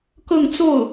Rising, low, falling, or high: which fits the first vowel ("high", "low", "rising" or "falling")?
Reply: falling